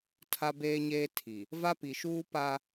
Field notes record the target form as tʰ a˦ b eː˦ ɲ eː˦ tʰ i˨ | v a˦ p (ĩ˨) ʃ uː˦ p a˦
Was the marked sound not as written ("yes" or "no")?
yes